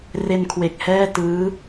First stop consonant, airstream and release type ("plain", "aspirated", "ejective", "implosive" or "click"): aspirated